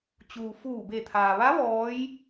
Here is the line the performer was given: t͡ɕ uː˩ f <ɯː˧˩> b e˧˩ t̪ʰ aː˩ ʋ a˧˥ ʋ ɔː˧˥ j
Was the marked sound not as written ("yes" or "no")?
yes